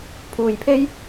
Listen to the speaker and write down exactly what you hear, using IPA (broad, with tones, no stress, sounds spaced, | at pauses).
pʰ uː˨ j pʰ e˥ j